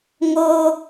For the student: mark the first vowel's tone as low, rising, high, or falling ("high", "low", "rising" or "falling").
high